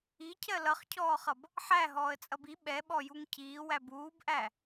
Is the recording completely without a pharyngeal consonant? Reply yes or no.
no